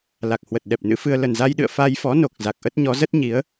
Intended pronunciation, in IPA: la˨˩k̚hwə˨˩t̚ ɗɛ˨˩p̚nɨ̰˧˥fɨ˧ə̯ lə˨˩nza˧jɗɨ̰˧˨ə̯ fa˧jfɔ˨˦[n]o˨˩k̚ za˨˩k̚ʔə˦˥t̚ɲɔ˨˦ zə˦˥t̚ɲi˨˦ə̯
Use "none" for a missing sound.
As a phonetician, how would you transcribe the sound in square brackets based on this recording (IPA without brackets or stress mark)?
n